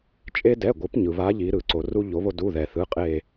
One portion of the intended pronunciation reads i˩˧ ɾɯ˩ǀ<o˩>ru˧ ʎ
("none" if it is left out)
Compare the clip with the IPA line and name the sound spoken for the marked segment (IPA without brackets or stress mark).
o˩